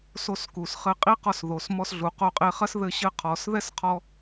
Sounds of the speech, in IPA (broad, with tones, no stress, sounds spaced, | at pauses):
s o˧ s k u˩ s χ ɘ˧ qʼ i˥ q ɔ˧ s ð o˩ s m ɔ˧ s ɮ u˩ q o˧ qʼ e˧ χ ɐ˥ s ð ɘ˧ ɕ ɘ˧ qʰ ɔ˩ s ð ɛ˥ s qʰ ɔ˧